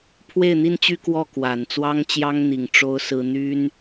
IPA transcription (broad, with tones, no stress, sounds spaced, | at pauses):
pʰ w e˥˩ ɪ̯ n̪ i˥ n t͡ɕ y˥ k w ɔ˥˩ k w a˨˩ n t͡s w ɑ˥ ŋ t͡ɕ j ɑ˥ ŋ n̪ i˨˩ ŋ ʈ͡ʂ o˥ ʊ̯ s ɹ̩˥ n̪ y˥ n